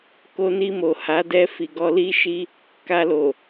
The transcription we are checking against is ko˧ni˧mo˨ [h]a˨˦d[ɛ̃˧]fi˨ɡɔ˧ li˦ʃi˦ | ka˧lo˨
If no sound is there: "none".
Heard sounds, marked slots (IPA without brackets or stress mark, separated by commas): h, ɛ˧